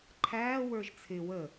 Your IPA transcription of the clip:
ǃʰ æː w ə˞ ʒ t͡sʰ ɪ w ə

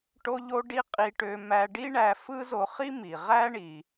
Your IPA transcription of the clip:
ʈ o˥ ʎ o˥ ɖ i˥ qʼ i˧ ʈ ø˧ m æ˧ ɖ i˥ ɳ æ˧ f ɯ˥ z o˧ χ i˥ m i˩ ʁ æ˥ ɳ i˩

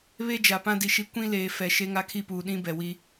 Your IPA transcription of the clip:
β e˦ d͡ʒ a˨ p ã˦ d i˨ ʃ i˦ kʷ ĩ˦ l eː˨ f ɛ˨ ʃ e˦ ŋ a˦ kʰ i˦ p uː˨ ɗ ĩ˦ b ɛ˨ w i˦

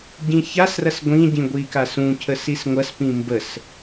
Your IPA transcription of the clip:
ɟ ĩ ç a s r ɐ s ɡʷ ĩ ɟ ĩ ɡʷ i k a s ũ cʰ ə s i s ŋʷ ɐ s p ĩ m b ə s

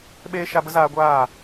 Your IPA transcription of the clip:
ɓ eː˦ ʃ a˧ b ə˦ z aː˧ ɡʷ aː˦˨

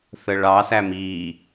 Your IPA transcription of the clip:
θ ə ɭ ɑ s æ m i

